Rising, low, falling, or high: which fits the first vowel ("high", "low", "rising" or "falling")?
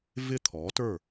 falling